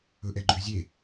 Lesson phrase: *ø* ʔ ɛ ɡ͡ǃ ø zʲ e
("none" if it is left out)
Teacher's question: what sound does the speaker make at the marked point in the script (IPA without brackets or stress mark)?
ɵ